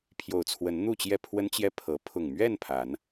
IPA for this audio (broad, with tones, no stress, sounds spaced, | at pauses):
pʰ j o˨˩ ʊ̯ t͡sʰ w ə˨˦ n n̪ u˥˨ t͡ɕ j ɛ˥˨ pʰ w ə˦ n t͡ɕ j ɛ˥˨ pʰ ɤ˨˦ pʰ ʊ˨˩ ŋ m ɥ ɛ˥˨ n pʰ a˨˦ n